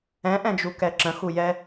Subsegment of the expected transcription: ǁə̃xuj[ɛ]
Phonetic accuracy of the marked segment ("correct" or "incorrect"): correct